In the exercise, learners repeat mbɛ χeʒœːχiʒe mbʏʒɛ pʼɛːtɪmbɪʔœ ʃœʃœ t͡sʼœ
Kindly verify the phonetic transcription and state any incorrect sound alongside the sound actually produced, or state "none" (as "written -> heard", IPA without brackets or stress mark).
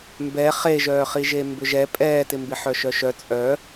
ʔ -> ħ